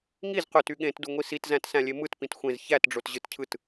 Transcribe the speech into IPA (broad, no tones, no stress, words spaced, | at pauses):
ŋiz qøty ɠẽtduŋʷi sitzæ̃tsæ̃lʲe mɯtpĩt xʷẽz çætɖ͡ʐotʑɯtcʰɯt